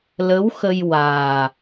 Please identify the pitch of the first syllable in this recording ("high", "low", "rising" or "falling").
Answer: rising